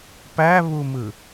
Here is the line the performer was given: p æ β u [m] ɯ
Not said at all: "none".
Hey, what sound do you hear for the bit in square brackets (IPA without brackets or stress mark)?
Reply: m